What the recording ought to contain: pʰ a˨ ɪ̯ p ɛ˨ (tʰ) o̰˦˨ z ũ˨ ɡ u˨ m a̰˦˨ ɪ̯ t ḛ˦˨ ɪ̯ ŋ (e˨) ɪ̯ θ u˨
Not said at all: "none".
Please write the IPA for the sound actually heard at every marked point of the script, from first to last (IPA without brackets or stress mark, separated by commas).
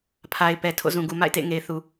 tʰ, e˨